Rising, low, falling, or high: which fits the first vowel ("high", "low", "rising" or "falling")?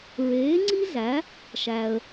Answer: rising